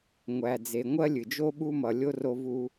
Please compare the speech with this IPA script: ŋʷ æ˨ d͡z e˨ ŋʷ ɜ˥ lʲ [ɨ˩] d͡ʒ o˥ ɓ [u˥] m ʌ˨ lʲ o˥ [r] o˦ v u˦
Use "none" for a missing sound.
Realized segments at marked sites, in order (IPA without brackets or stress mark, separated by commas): ɨ˩, u˥, r